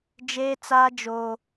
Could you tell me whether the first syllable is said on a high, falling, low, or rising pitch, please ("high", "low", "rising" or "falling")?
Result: high